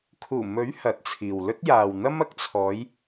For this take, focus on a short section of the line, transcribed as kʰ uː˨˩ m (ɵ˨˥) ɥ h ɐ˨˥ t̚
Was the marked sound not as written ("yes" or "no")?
no